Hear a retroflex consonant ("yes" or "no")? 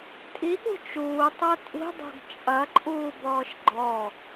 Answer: no